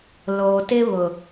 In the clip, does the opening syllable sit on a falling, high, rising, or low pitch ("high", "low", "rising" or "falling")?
low